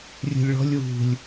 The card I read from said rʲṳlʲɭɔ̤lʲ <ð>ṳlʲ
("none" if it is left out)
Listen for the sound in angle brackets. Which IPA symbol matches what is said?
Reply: w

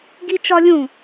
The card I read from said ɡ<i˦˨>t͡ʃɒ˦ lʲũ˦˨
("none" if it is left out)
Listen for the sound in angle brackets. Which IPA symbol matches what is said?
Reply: i˦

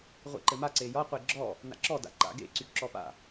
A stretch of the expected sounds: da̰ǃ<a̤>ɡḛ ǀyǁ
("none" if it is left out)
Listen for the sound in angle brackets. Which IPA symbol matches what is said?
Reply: a̰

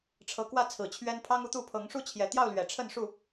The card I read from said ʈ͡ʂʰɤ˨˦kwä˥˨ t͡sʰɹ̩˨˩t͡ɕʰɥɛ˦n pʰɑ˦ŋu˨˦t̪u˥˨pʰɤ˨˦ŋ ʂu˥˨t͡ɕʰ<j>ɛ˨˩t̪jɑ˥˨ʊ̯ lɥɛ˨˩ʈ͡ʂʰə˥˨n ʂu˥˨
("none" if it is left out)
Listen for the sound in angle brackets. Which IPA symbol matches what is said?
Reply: j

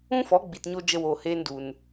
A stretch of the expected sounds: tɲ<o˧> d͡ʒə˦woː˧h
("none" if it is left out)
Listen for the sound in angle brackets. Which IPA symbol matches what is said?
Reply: o˧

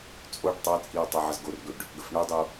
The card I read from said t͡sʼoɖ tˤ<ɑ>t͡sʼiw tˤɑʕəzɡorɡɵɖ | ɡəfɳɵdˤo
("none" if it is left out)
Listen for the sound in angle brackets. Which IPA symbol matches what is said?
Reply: ɑ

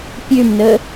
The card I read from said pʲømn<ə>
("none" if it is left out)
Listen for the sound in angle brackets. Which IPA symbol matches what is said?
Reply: ə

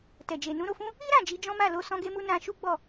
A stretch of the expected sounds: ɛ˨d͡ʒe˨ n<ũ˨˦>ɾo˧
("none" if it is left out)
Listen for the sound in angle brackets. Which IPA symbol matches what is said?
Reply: ũ˨˦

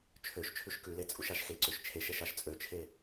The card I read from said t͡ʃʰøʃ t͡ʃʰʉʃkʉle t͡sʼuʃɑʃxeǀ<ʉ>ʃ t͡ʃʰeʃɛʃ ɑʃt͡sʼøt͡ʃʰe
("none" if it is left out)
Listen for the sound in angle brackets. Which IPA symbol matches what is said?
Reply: ø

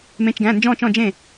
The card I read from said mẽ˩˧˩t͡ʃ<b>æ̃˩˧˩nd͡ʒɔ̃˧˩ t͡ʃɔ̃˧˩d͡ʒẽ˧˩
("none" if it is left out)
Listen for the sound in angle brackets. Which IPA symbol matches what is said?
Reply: ɡ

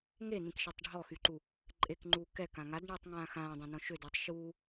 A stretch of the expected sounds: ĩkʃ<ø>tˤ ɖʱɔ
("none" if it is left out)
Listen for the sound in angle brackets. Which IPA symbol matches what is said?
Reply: ɛ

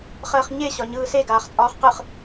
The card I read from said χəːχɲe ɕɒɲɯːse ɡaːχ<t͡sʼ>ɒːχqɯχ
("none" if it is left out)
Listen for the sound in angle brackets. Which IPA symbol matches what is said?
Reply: t͡sʼ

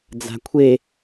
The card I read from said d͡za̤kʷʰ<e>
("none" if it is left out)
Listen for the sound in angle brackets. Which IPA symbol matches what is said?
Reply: e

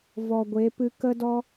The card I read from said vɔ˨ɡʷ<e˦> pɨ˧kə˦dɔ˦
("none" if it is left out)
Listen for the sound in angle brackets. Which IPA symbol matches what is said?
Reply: e˨˦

